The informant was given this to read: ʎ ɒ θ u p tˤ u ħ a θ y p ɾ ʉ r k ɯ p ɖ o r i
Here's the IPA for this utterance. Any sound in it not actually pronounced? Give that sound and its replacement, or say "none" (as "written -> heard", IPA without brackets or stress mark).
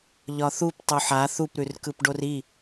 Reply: y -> u